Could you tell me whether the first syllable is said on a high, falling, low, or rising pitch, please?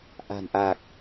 low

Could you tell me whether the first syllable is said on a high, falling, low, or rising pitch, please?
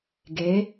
rising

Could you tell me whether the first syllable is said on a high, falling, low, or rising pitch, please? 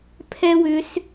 high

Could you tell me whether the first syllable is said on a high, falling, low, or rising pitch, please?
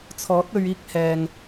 rising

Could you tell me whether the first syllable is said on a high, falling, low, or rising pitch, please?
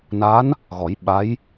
rising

